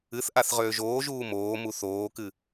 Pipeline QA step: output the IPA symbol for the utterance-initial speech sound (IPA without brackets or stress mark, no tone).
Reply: ɨ